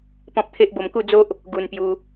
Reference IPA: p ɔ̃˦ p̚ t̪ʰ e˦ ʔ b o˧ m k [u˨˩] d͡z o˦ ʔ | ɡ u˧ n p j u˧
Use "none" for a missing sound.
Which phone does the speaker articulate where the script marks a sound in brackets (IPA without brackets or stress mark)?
u˥˧